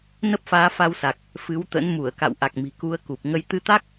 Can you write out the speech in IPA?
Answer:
n ə˦˥ p̚ f aː˨˦ f a˧ w s a˨˩ k̚ | f ɨ˨˦ w t̪ ə̰˧˥ n m u˧˩ ə̯ k a̰˧˨ w ʔ a˨˩ k̚ m i̤˨˩ k u˨˦ ə̯ k u˨˩ p̚ ŋ ə˧ j t̪ ɨ˨˦ t̪ a˦˥ k̚

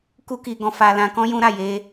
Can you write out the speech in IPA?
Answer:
k u˦ k i˧ ɡ ɔ̃˧ f a˧ l ã˧ k ɔ̃˦ j ũ˦ ɾ a˦˨ j e˧

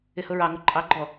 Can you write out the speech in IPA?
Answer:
ɪ h ʊ ɹ ɑ ŋ ʊ ǃʼ ɑ ɡ͡ǃ ɔ

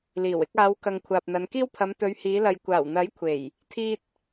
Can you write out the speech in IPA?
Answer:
l iː˨˩ w ɪ˧ k̚ aː˨˧ w k ɐ˨ ŋ kʷʰ aː˨ p̚ n̪ ɐ˨˧ n k iː˥ w pʰ ɐ˨˧ m t̪ ɵ˨˧ ɥ h iː˨˧ l ɐ˨ j kʷ aː˨˩ w n̪ ɐ˨˥ j kʷʰ e˨˩ j | t̪ʰ iː˥ t̚

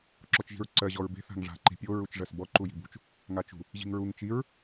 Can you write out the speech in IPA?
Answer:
ǁ ɔ t͡ʃ ʒ i̤ ɹ ǀ ɜ ʑ ɔ ɹ b e̤ θ a̤ ŋ ʐ a̤ ǃ i̤ pʲ o ɹ u t͡ʃ ʐ ɜ s b ɔ ǃ u j i̤ b ṳ t͡ʃ | ŋ a t͡ʃ ṳ | ʑ i̤ ŋ ɹ u ŋ t͡ʃ i ɹ

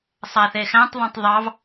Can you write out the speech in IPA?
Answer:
sˤ æ θ e x æ̃ tˤ ðˤ õ tˤ ðˤ ɑ v

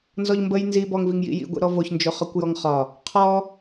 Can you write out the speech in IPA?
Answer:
n z ɔ ʎ m b ə j n z i b ɔ ŋ v i ŋ j ḭ j ḭ ɡʷ ḭ ɾ ɔ v o ç n d͡ʒ o χ ɒ kʷ j ɔ ŋ χ ɒ | qʰ ɔ

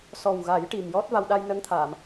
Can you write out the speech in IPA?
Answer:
s ɔ˨˩ w ɣ a˨˩˦ j ʈ i˨˩ m j ɔ˦˥ t̚ v a˧ w ɗ a˧ j n ə˧˥ ŋ t̪ʰ a˨˩˨ m

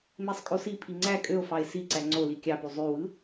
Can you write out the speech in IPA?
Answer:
m e sˤ kʼ o s i pʰ i ŋ͡ǀ æ kʼ ø o̯ f ɑ e̯ s i ǀ æ ŋ͡ǀ o l i kʲ ɑ p y zˤ y w ɯ

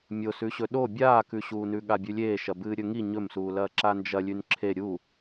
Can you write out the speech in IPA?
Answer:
mʲ o s ʉ ɕ ɵ ɗ o bʲ aː k ʉ ɕ uː n ʉ ɠ a bʲ ʉ lʲ eː ʃ ɐ b ɨː ɾʲ ɵ ŋ i ɲ ɵ m s uː l ɐː ǁ a n d͡ʒ ɐ lʲ ʉ n ǁʰ e ɾʲ u

